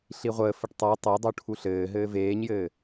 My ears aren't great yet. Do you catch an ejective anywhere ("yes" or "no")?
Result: no